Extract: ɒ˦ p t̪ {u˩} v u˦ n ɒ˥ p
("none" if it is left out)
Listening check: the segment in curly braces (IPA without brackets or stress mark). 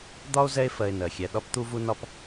u˦